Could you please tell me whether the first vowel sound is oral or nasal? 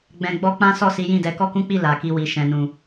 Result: nasal